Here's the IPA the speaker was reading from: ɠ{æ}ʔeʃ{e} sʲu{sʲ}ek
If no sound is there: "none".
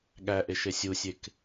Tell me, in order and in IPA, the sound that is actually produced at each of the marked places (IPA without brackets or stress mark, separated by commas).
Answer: æ, e, sʲ